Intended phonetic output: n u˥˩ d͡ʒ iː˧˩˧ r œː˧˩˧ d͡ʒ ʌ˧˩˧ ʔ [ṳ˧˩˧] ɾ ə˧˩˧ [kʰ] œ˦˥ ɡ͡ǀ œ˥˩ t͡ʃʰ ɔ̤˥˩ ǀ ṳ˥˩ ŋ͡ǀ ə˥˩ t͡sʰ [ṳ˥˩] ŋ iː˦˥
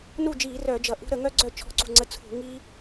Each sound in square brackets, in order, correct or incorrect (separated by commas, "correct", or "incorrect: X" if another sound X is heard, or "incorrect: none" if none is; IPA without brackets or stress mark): incorrect: ṳ˦˥, incorrect: ŋ, incorrect: ṳ˧˩˧